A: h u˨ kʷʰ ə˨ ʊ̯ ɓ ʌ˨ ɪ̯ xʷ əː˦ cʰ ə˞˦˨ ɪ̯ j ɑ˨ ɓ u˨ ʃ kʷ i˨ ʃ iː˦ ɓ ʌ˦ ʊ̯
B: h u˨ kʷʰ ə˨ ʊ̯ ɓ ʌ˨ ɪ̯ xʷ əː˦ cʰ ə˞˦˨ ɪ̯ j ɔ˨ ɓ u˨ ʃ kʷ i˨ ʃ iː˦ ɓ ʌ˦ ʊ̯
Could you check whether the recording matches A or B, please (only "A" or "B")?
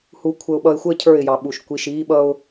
A